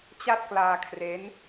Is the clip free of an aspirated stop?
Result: no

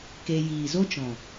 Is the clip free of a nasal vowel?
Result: no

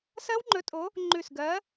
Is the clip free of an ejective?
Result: no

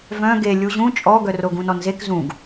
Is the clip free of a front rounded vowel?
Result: no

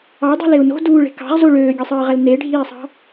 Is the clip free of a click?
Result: yes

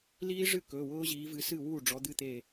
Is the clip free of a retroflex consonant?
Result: no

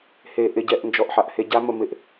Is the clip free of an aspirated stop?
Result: yes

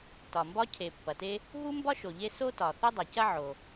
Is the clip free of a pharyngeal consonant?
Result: no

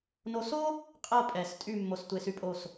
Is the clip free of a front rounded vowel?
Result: no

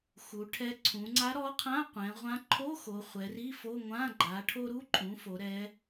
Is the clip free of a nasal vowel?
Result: no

